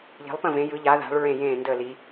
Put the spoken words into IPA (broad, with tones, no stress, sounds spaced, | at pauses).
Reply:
ʎ i̤˨˦ lˠ p ə̃˥˨ v ẽ˨˦ j ɯ˨˦ ʎ a˨˦ ð a̤˨˦ ɭ ɹ ẽ˥˨ j ẽː˥˨ n d əː˥˨ l i˨˦